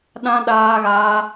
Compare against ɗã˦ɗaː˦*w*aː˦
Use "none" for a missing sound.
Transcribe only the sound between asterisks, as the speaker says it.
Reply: ɣ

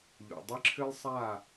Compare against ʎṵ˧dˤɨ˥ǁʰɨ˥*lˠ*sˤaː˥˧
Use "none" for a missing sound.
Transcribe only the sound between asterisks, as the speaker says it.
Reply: lˠ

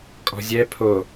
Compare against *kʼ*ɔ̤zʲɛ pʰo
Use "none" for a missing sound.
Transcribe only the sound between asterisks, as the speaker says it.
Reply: kʼ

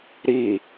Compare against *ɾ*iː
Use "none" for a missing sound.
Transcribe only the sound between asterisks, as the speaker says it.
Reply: ɾ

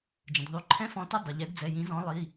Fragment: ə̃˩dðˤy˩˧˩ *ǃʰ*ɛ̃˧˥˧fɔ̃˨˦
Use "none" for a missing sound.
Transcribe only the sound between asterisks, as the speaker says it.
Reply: ǃʰ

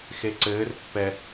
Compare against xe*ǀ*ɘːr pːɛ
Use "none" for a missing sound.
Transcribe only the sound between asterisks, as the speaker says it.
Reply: ǀ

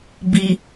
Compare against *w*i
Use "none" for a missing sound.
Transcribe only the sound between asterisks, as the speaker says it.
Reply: b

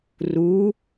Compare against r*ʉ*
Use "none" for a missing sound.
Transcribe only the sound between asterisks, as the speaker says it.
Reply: u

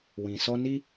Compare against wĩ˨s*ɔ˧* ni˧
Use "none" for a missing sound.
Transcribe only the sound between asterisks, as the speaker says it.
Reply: ɔ˧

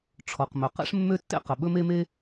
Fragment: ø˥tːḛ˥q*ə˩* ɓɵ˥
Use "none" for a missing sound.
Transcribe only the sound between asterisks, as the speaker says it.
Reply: ə˩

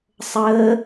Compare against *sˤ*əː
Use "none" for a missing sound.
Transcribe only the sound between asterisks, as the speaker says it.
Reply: sˤ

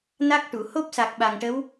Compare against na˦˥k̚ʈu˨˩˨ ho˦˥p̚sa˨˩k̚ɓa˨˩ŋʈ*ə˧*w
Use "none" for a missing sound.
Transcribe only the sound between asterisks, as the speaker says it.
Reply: ə˧˥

